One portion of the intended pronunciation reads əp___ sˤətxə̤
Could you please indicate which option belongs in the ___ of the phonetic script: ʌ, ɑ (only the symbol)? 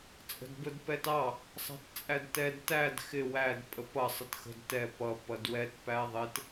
ʌ